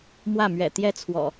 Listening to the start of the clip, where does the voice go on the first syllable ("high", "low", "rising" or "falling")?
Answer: falling